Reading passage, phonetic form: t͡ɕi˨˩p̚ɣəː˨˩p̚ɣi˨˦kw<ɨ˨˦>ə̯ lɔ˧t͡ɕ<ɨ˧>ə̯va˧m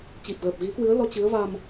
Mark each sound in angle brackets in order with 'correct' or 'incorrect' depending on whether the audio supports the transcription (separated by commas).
correct, incorrect